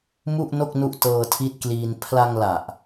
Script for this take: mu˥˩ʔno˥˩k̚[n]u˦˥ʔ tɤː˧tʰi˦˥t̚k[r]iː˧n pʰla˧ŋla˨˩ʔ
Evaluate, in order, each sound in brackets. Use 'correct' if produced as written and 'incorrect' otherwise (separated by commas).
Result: correct, incorrect